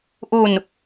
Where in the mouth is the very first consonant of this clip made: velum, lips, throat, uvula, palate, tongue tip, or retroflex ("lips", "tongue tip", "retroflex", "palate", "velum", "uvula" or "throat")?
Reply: throat